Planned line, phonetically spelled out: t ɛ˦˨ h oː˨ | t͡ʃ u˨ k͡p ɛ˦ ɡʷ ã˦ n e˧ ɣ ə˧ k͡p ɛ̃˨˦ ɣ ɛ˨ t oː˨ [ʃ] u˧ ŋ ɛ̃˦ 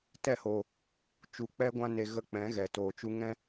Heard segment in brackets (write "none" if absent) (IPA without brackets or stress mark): t͡ʃ